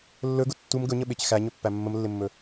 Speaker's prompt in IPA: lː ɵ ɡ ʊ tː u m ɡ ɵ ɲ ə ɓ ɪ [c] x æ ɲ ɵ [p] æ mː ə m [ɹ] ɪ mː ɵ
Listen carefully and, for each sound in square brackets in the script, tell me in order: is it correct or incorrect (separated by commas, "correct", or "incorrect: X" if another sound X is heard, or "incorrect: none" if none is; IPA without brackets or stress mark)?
correct, incorrect: pː, incorrect: lː